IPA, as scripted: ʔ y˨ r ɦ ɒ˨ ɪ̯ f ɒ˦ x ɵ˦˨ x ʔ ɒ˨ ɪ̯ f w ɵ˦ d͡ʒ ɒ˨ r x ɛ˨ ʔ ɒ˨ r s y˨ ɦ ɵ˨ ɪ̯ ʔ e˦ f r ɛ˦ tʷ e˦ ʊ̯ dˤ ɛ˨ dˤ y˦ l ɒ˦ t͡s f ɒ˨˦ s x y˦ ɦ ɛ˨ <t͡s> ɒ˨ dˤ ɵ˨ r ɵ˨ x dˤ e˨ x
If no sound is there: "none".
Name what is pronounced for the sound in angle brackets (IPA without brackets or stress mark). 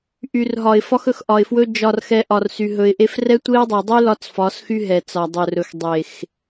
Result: t͡s